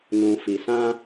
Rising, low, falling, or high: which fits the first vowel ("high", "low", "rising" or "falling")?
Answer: low